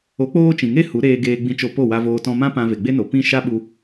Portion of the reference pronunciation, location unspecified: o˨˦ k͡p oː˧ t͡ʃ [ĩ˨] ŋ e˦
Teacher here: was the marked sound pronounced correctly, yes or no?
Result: yes